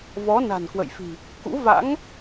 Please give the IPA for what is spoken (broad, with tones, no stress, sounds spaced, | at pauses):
v ɔ˨˦ n a̤˨˩ n k w ə̰˧˨ j f i̤˨˩ | k ṵ˧˥ v a̰˧˥ ŋ